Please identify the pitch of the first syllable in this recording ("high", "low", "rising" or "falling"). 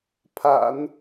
low